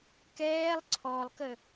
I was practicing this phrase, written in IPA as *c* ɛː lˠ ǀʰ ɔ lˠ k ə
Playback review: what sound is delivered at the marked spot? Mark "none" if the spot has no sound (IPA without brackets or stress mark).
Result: k